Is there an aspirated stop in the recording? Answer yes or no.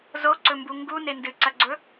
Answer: no